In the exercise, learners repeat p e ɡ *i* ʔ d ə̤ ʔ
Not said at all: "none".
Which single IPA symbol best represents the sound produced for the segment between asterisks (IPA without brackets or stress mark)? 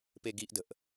i